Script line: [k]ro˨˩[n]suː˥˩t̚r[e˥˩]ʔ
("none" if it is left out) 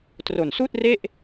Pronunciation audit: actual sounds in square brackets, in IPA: t, n, e˥˩

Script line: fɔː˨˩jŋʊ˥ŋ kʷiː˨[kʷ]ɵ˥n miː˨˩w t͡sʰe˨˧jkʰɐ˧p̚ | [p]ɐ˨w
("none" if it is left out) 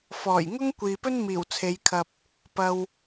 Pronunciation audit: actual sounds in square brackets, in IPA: p, p

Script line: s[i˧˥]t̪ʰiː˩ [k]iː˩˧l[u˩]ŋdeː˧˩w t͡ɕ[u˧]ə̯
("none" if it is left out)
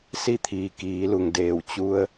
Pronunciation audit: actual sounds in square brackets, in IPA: i˥˨, k, u˩, u˧

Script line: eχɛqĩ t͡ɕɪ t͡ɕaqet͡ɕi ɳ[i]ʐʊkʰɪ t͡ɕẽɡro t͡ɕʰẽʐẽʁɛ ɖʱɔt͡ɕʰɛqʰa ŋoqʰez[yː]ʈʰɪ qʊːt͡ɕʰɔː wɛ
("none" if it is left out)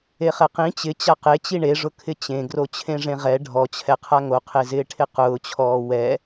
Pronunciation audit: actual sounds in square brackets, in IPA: e, ɪː

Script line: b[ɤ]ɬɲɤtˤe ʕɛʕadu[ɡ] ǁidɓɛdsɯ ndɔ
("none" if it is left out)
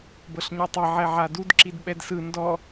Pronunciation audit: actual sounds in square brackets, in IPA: ɤ, d

